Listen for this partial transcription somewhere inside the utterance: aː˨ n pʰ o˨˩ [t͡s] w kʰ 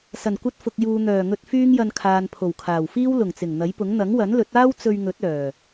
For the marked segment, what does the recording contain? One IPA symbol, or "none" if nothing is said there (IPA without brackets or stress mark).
none